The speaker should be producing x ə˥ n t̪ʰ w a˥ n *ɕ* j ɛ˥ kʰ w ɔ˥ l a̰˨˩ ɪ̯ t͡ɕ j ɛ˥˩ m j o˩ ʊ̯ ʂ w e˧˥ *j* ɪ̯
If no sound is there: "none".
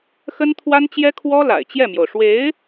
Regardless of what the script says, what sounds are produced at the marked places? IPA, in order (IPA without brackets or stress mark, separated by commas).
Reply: t͡ɕ, none